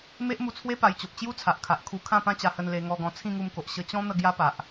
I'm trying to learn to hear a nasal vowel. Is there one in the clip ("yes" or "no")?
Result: yes